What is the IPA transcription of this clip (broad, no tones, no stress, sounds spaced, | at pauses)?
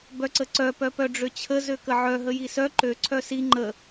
b œ ǀ ə ǀ œ p œ p œ ɖ͡ʐ ø t͡ɕʰ ə z ø k ə ʕ œ ɦ ə j i s œ ǃ ø ǀʰ œ s i ŋ͡ǃ ə